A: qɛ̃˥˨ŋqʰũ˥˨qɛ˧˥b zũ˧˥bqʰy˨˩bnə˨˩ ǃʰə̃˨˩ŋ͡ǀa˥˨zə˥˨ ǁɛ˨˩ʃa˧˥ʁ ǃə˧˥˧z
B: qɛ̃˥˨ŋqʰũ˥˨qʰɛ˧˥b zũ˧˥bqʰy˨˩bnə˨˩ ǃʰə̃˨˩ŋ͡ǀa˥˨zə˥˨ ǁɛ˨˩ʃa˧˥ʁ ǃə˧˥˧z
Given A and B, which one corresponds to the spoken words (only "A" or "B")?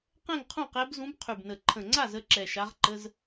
A